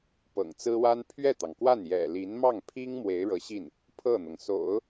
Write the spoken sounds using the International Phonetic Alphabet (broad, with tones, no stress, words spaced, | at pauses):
pɤ̰˨˩ŋt͡sɹ̩˥wa˥n pʰɥɛ˥˩t̪ɑ˩ŋkwa˥˩n jɛ̰˨˩li˧˥n mɑ˥˩ŋpʰi˥ŋ mwe˧˥ɪ̯ɻɤ˧˥ɕi˥˩n | pʰɤ˥˩n̪ɤ˩ŋso̰˨˩˦ʊ̯